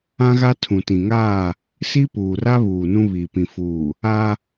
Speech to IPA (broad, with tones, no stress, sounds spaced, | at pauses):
ã˦ ɣ a˦ tʰ ũ˨ t ĩ˨ ŋ aː˦˨ | s i˦ p uː˨ r a˦ β uː˨ n ũ˦ β i˨ p ĩ˨ f uː˨ | a˦